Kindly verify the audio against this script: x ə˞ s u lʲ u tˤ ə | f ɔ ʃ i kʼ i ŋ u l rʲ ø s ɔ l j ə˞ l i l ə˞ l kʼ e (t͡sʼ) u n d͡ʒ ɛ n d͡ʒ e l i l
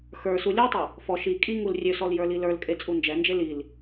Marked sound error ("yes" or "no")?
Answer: no